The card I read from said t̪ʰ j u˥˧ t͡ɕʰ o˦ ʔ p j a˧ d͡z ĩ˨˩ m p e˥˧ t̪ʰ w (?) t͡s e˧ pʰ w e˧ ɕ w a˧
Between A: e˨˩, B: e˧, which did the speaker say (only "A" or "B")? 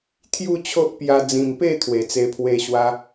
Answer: A